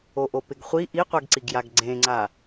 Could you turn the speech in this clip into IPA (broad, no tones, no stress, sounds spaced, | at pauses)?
o ʔ o p ɪ ɡ χʷ i ʔ i qʷ ɛ ɡ ǀ i ɡ j a ɡ ɡ͡ǀ ẽ ŋ͡ǀ a